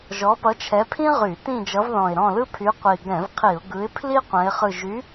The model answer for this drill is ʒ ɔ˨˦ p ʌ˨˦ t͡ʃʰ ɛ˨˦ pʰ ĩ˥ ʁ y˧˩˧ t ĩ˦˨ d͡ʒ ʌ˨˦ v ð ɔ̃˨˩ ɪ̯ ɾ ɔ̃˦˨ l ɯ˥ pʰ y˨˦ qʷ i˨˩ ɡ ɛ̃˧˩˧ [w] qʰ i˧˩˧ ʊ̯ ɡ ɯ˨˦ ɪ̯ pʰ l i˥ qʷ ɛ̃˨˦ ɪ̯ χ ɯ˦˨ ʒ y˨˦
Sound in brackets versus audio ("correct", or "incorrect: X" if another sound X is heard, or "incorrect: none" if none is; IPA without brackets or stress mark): incorrect: v